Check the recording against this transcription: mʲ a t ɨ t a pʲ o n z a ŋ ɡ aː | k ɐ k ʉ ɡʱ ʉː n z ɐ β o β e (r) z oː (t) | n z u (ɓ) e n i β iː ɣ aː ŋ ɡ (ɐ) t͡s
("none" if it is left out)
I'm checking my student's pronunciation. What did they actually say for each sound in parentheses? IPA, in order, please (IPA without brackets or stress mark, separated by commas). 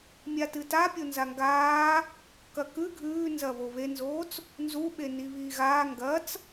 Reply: n, t͡s, ɓ, ɐ